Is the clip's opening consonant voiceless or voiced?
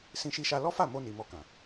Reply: voiceless